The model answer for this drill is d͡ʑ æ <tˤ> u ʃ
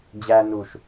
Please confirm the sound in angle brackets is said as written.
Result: no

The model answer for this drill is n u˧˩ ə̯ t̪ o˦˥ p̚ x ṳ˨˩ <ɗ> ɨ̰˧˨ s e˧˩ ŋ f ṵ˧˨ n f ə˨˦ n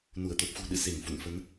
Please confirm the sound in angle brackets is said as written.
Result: yes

